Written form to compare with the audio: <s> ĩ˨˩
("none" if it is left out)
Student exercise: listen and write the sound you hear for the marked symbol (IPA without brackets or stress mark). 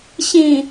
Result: ɕ